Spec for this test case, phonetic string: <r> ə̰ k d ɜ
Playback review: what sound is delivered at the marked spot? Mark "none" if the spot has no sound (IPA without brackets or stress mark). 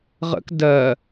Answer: ʁ